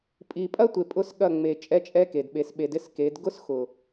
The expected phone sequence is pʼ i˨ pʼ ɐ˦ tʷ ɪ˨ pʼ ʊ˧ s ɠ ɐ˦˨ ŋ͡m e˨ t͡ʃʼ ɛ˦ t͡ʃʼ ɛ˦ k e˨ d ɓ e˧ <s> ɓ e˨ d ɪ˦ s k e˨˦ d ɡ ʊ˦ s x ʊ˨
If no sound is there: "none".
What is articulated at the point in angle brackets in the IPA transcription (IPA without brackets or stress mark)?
s